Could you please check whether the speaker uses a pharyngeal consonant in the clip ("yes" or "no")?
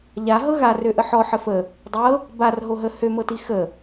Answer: yes